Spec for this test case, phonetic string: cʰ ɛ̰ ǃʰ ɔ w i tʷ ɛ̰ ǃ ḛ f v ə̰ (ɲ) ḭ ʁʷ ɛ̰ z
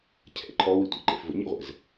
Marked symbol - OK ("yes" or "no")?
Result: yes